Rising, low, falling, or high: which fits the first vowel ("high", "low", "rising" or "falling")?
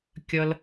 high